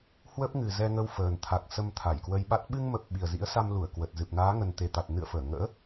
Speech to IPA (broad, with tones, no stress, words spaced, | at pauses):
hwə˦˥p̚ŋɨ˨˩ zɛ˧ŋə˧wfəː˨˩nt̪ʰa˨˩k̚ sə˧mt̪ʰa˧˩jkwə˧jɓa˦˥t̚ ɓɨ˧ŋmə˨˩p̚ ɓi˨˩ə̯zḭ˧˥ə̯sa˧mlu˧˩ə̯ kwə˨˩t̚ zɨ˨˩p̚naː˨˦ŋə˨˩n t̪e˨˩t̪a˨˩t̚ nɨ̰˧˨ə̯fəː˧˩ ŋə̰ː˧˥